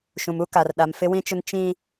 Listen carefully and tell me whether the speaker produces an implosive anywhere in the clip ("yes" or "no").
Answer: yes